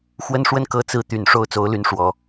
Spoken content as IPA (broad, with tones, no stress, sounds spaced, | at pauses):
x w ə˥ n ʂ w ə˥˩ n k ɤ˥ t͡s ɹ̩˥˩ t̪ y˨˩ n ʂ o˥ ʊ̯ t͡s o˧˥ ʊ̯ l y˧˥ n ʂ w ɔ˨˩˦